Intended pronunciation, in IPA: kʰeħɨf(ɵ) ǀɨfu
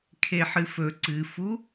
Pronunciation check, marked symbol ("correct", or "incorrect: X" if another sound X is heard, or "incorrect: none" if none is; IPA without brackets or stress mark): correct